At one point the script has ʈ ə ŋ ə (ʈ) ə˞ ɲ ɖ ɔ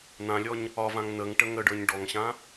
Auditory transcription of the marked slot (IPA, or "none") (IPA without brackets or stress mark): ɖ